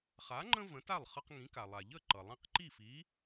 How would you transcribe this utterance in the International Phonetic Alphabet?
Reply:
χ a˩˥ ŋ͡ǃ ə̃˥ v ə̃˩˥ t a˥˩ lˠ χ ʌ˧ q ŋ ĩ˩˥ k a˩ lˠ a˩ ʎ ə˥˩ ǃ ʌ˩ lˠ ĩ˧ q ǃ i˥˩ f i˩˥

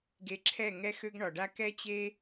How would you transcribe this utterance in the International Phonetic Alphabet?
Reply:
ɡ e˧ ǁʰ ɛ˦˨ ŋ ɛ˦ x ø˦ ɡ ɳ ɒ˨ ɖ a˦ k ɛ˦ t͡ɕ e˦

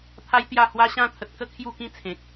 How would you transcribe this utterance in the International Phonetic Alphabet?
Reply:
t̪ʰ a˦ j t̪ j a˥˧ h w a˦ ɕ ã˧ t̪ʰ ə˨ t̚ k ə˥˧ kʰ j u˥˧ k ĩ˥˧ t͡sʰ ẽ˨ k̚

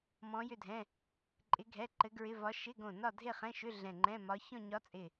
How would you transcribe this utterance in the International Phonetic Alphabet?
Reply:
m ɔ̃˧˥ j ʏ˥˧ dʱ ɛ̃˧˥˧ | ǃʼ ɪ˧˥ ɡʱ ɛ˧˥˧ ǃ ɘ˧˥ ɡ ɹ ɪ˧˥˧ v ɒ˧˥ ʃ ɪ˧˥˧ ɡ õ˧˩ n ɒ˥˧ dʱ e˥˧ χ ɛ̃˧˥˧ ʃ ʏ˧˥˧ ɮ ɛ̃˧˩ ŋ͡ǃ ɛ̃˧˥˧ m ɒ˧˥ ç ɔ̃˥˧ ɲ ɒ˧˥ t͡sʼ ɪ˧˩

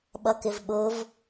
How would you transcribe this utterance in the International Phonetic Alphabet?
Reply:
ɓ ʌ k ɪ v ɓ ʊ v

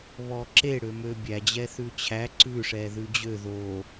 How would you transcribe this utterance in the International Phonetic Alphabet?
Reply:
β ɔ ǁ e ɽ ø m ø bʲ æ d͡ʑ ɛ θ ʉ t͡ɕʰ æ ǀ ʉ ʂ ɛ ð ʉ d͡ʑ ø ð o

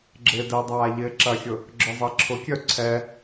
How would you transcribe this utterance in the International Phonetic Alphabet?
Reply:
ɡ͡ǁ ɪː d ɛ dˤ aː ʎ ɪː ǁ ɐ xʲ ʊ | ɡ͡ǁ œ zˤ ɛ ǁʰ ʊ kʲ œ ǀʰ ɛ

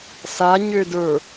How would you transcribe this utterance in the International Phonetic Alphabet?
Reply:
s a ɲ ø d ə˞

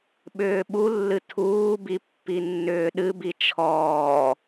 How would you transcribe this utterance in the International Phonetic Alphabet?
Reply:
ɓ ʏː ɓ u lː ɨ tʰ uː b i pː i nː ʏː ɗ ɨ b i t͡ʃʰ ɔː

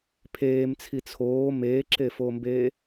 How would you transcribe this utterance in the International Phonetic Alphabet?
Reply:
pʰ eː m t͡sʰ i t͡sʰ oː m eː ǁ e f oː m b eː

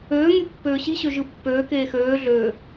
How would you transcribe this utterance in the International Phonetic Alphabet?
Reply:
øː ŋ y pː øː ɕ i ɕ ø ʒ ɯ pː øː k eː x øː ɮ øː

